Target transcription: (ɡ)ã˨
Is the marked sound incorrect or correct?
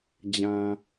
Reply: incorrect